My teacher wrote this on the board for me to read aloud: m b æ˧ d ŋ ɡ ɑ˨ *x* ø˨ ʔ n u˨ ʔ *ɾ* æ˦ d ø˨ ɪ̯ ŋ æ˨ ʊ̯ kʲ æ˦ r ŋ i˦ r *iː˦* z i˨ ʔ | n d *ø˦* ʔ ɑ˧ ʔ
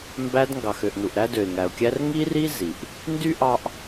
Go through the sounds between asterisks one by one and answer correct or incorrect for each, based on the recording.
correct, correct, incorrect, incorrect

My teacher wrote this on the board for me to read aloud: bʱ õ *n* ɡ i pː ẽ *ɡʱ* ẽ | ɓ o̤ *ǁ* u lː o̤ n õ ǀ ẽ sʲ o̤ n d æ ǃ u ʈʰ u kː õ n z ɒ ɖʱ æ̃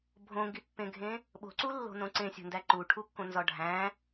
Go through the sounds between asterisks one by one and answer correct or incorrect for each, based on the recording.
incorrect, correct, incorrect

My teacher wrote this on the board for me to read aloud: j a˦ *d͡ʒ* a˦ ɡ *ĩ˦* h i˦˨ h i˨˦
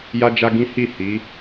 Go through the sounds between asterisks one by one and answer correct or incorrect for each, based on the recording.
correct, correct

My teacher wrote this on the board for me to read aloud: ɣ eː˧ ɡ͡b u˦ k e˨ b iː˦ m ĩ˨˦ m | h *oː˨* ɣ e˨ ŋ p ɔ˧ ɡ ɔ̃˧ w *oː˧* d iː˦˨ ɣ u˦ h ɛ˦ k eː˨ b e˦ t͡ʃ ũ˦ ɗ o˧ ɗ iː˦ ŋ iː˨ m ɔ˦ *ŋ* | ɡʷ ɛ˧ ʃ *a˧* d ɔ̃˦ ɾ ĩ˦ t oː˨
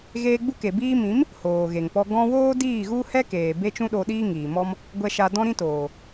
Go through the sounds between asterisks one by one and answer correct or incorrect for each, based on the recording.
correct, incorrect, incorrect, correct

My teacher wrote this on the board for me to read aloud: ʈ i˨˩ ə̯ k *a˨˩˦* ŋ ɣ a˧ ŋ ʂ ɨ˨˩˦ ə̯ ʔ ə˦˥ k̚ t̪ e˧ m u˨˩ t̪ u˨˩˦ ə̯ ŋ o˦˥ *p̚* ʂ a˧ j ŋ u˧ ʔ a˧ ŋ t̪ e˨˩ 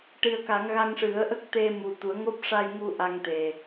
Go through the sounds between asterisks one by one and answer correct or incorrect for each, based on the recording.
correct, correct

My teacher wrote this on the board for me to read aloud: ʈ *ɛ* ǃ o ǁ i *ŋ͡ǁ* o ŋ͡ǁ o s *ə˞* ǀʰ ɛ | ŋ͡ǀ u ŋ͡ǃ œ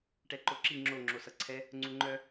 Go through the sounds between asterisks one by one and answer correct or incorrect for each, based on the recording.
correct, correct, incorrect

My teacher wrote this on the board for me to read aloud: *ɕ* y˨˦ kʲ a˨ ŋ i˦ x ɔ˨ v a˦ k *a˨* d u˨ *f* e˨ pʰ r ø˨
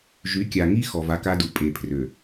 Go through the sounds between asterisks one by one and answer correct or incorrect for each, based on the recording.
incorrect, incorrect, incorrect

